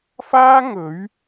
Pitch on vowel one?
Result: high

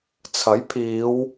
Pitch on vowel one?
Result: rising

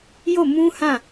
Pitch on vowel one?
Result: falling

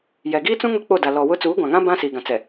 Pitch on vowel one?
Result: low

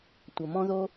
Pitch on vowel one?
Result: low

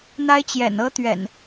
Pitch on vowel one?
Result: high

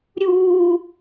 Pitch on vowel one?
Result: high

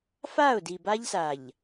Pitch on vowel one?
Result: falling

